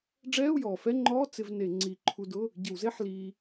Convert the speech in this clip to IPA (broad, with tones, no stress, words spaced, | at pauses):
ɖ͡ʐɛː˧˥˧u̯jɔː˩fɛ˧˥˧ŋ͡ǃɔː˧˥˧ t͡sɪ˧v ne˧˩˧ ŋ͡ǀi˧˩˧ ǃʰu˧dʊ˧˥˧ | ɟɪ˧˩˧wze˧˥˧ħ liː˧